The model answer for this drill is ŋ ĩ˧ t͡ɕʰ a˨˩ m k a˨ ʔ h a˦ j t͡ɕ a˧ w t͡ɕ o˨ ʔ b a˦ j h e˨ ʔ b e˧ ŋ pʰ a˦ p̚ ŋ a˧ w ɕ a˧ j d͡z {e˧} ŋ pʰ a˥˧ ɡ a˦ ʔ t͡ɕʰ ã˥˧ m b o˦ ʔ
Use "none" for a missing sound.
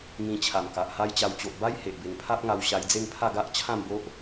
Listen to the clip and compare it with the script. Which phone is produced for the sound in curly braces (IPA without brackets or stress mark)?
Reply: e˥˧